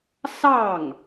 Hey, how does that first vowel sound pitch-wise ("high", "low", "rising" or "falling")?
falling